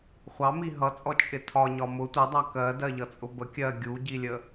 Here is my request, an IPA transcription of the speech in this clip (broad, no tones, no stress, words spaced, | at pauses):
χʷɑ miɦʌt͡sʼɔ t͡ʃʼɪtʰɒ ɲɒmʊ tʷɜdˤɑ kɜdɜʎʌt͡sʼʊ bə kʲɜ ɡʲuɟilʲə